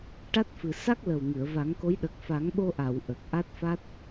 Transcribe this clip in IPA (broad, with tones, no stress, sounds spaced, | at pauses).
ʈ a˦˥ t̚ f ɨ˨˩ s a˦˥ k̚ l ə˨˩ w ŋ ɨ˨˩˨ ə̯ v a˨˩˦ ŋ k o˧˥ j ɗ ə˨˩ k̚ f a˨˩˦ ŋ ɓ o˧ ʔ a˨˩˨ w ʔ ə˨˩ k̚ ʔ a˦˥ t̚ f a˦˥ t̚